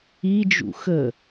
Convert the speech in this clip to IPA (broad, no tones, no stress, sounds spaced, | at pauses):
i d͡ʒ ṵ x ə